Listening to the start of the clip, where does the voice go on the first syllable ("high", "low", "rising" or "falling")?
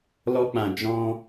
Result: high